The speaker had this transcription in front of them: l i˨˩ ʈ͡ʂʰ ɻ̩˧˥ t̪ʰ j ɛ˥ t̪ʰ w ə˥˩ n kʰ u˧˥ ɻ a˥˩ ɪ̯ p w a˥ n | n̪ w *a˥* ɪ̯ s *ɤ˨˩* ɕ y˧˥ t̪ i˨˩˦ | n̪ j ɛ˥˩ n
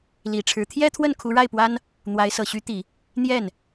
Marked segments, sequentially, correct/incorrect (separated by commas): incorrect, correct